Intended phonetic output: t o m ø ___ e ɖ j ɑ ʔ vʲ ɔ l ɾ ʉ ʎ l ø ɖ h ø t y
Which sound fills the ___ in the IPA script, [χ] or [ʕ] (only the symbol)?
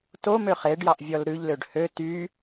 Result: χ